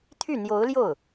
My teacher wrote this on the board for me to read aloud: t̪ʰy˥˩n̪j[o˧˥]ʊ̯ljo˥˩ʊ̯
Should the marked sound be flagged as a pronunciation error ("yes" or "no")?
no